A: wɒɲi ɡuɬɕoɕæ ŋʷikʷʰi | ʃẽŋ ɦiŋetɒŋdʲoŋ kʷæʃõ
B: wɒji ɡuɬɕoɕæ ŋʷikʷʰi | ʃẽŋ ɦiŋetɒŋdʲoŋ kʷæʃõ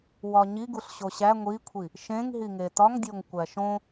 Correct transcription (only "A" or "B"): A